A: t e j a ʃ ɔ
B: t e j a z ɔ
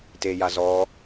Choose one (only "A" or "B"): B